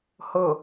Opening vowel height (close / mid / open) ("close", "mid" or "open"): mid